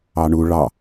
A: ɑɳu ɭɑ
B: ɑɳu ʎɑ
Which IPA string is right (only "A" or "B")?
A